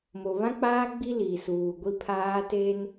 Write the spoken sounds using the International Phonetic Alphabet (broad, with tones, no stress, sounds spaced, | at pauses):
m o˨ β ã˦ k͡p aː˦ ɡ͡b i˦ l iː˨ s uː˨ ɡʷ i˦ pʰ aː˦ t eː˦ n